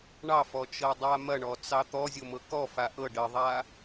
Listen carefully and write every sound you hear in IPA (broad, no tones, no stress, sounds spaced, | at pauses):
ɳ ɑ f ɔ t͡ʃ ɤ dˤ a m ɐ ɳ ɔ t͡s ɑ t̪ ɔ zʲ o m ɤ k ɔ f a ʔ ɤ ɖ ə ðˤ a